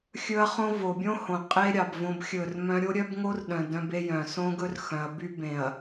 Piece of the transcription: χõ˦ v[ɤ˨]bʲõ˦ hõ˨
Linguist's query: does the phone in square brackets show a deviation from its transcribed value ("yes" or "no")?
yes